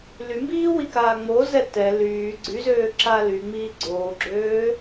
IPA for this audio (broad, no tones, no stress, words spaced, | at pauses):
lymbiːwikaː ŋ͡mozɛ tɛ lyː ɡ͡ǀyzøːǁa lyŋ͡miː ɡ͡ǀoːɡ͡ǁøː